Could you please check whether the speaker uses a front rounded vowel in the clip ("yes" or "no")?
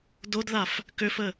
yes